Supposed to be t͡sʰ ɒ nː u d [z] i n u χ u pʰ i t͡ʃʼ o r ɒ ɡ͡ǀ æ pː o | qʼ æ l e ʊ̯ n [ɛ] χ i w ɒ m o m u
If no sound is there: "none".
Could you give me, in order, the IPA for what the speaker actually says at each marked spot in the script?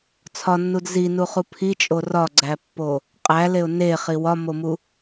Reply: z, e

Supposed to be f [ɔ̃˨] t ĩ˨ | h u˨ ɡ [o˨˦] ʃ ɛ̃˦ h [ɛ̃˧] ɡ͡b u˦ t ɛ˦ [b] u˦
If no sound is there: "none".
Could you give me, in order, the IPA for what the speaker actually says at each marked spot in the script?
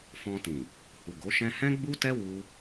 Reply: ɔ̃˧, o˨˦, ɛ̃˦, w

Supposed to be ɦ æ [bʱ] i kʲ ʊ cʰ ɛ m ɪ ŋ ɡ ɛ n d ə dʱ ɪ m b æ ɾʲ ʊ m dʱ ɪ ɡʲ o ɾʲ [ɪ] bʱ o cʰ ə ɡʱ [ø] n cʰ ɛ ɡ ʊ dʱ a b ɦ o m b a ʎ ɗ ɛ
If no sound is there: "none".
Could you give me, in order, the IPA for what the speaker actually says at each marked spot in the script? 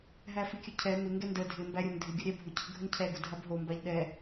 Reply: f, ɛ, ə

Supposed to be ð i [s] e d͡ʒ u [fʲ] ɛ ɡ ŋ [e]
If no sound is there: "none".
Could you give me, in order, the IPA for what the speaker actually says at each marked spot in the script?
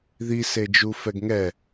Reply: s, f, ɛ

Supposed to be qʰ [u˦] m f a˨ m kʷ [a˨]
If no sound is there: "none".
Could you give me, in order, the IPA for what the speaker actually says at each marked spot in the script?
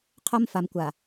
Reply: o˦, a˨

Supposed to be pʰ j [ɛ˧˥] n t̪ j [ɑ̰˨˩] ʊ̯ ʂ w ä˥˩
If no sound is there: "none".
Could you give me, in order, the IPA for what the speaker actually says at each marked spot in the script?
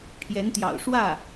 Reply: ɛ˧˥, ɑ̰˨˩

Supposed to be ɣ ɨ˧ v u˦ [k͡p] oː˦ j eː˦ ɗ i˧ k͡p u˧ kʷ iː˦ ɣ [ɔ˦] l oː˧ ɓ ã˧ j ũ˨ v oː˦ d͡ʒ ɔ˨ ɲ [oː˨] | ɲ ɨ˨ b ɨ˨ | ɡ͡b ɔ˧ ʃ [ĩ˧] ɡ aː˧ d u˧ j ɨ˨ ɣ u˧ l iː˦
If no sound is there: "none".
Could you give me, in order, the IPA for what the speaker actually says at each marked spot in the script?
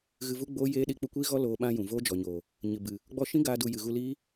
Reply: ɡ͡b, ɔ˦, oː˨, ĩ˦

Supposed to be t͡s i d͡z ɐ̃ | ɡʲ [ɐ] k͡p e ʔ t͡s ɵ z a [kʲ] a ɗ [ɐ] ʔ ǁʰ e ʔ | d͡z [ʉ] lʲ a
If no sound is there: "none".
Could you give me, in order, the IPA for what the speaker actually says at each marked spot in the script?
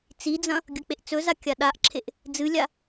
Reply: ɐ, kʲ, a, ɨ

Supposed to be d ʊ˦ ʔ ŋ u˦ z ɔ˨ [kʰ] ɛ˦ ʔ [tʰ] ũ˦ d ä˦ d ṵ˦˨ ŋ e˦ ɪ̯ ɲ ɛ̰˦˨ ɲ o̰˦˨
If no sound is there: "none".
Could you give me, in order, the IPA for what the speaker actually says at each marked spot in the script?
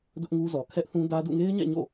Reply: kʰ, θ

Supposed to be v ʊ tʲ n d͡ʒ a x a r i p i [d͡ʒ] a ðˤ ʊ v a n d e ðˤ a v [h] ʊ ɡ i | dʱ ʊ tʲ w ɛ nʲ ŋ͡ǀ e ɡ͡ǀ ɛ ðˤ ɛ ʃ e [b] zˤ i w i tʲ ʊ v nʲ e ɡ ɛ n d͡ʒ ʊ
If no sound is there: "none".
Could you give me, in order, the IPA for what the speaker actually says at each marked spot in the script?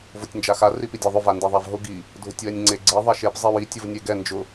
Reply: dʲ, ɦ, p

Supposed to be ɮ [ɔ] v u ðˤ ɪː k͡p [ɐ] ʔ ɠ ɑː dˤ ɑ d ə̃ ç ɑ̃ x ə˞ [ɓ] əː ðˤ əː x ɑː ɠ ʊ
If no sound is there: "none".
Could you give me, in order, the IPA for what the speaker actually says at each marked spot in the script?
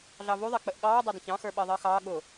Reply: ɑ, ə, ɓ

